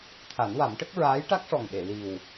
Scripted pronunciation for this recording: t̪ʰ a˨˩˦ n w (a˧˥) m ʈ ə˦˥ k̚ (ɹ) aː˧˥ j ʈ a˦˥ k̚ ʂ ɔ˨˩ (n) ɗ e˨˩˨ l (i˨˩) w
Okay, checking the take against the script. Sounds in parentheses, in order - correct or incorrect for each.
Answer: incorrect: a˨˩˦, correct, incorrect: ŋ, correct

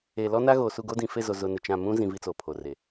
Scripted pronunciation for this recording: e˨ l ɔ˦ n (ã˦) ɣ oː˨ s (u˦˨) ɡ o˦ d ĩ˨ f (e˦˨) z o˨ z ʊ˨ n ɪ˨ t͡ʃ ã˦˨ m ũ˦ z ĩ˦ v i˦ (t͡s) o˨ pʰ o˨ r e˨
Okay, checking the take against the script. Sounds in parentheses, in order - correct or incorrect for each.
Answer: incorrect: a˦, correct, correct, correct

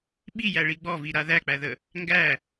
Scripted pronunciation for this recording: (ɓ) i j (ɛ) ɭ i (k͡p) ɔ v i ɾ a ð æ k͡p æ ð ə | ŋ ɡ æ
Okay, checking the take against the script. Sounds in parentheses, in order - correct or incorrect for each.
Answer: correct, incorrect: æ, incorrect: ɡ͡b

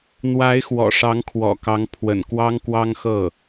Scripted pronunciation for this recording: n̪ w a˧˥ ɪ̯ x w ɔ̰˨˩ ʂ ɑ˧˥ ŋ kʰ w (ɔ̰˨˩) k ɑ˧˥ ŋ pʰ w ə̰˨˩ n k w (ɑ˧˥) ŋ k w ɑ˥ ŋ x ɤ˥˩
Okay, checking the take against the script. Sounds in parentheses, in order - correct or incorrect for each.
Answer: correct, incorrect: ɑ˥

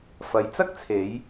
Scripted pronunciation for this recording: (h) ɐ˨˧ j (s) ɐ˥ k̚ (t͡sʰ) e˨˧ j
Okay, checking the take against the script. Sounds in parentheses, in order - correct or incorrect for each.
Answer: incorrect: f, incorrect: t͡s, correct

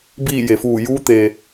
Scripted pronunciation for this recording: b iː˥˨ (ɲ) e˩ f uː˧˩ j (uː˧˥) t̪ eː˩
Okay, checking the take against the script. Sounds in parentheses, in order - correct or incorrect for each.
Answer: incorrect: j, correct

